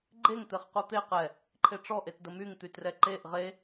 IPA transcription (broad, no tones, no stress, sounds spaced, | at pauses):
ɡ͡ǃ e ŋ t̪ e χ q u t̪ e q ɛ | ǃʰ e ʈ͡ʂ ɔ ʔ e t d ə m y ŋ t̪ y t r ɛ ǃ e ʔ ʁ e